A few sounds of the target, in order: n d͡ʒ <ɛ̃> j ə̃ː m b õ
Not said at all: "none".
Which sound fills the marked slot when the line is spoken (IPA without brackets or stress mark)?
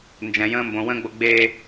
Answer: ɛ̃